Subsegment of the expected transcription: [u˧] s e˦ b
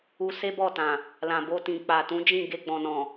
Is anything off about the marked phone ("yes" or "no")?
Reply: no